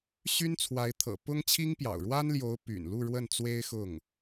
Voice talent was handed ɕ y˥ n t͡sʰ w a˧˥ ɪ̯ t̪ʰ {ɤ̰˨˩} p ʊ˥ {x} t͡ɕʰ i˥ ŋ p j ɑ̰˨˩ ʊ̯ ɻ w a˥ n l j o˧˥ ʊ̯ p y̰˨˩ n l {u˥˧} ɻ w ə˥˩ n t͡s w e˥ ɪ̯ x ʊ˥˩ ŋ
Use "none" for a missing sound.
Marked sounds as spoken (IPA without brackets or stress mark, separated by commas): ɤ̰˨˩, ŋ, u˥˧